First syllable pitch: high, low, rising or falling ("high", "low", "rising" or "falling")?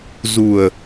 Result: low